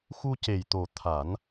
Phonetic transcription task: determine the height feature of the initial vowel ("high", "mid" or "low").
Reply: high